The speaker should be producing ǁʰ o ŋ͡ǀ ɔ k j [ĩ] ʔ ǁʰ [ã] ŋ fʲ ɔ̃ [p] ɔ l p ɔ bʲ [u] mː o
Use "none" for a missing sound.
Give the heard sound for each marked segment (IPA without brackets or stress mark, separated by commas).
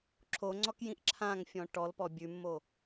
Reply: ĩ, ã, ʈ, ʉ